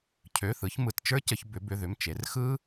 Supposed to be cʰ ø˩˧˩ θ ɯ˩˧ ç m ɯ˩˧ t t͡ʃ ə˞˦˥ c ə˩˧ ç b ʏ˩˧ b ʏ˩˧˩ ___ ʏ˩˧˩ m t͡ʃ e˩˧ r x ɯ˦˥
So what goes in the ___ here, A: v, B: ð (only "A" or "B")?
B